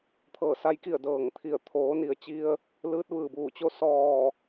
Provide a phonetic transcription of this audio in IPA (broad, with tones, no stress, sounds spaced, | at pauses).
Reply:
t̪ʰ ɤː˧˩ s a˧˥ j k i˧˩ ə̯ d ɤː˧˩ ŋ t̪ʰ i˧˩ ə̯ t̪ʰ oː˩˧ n i˩ ə̯ t͡ɕ i˧ ə̯ | l ɯː˧˥ t̚ ʋ ɯː˩ b uː˧˩ t͡ɕ o˥˨ s ɔː˧˩